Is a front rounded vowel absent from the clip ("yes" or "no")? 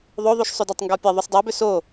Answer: no